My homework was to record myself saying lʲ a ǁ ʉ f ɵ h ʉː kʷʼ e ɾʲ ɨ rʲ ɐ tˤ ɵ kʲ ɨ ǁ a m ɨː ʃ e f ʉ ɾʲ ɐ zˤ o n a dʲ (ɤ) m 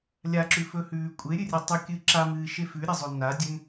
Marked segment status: incorrect: ɵ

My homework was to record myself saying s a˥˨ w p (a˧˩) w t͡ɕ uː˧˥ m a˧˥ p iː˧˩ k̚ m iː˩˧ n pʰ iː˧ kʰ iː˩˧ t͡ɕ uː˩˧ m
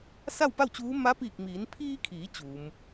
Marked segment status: incorrect: a˥˨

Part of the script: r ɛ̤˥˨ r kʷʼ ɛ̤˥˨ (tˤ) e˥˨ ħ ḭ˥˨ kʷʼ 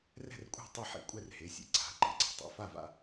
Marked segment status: correct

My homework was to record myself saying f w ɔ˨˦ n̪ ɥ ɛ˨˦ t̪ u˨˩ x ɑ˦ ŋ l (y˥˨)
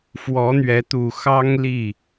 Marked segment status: incorrect: i˥˨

